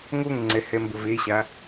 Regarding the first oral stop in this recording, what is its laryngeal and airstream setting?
click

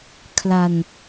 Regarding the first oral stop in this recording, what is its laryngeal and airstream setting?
aspirated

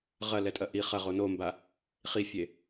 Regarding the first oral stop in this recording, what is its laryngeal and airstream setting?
ejective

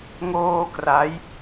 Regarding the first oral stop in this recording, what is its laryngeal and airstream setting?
plain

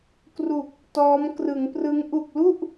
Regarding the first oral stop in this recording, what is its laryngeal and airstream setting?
plain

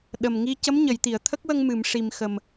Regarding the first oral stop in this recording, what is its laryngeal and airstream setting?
implosive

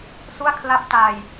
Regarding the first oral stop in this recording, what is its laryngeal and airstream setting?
aspirated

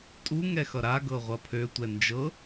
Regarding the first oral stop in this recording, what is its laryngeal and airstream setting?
ejective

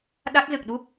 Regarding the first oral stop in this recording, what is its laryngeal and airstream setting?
implosive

